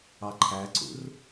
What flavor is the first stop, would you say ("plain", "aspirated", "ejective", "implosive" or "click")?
click